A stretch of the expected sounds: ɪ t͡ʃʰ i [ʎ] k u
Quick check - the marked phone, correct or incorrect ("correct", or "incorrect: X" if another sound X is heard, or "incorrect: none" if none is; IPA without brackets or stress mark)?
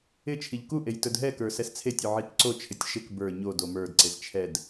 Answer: correct